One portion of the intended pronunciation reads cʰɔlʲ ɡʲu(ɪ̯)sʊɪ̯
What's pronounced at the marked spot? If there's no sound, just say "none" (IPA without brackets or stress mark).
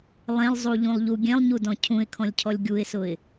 ɪ̯